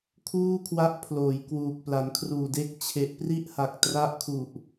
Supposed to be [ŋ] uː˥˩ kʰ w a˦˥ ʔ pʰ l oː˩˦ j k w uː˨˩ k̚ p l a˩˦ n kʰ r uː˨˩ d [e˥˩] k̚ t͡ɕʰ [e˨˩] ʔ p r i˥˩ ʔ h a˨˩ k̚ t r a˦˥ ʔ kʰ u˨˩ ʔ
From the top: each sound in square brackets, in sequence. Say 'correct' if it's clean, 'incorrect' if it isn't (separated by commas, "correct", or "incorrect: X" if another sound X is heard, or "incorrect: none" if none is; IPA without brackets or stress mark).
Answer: incorrect: kʰ, incorrect: e˦˥, correct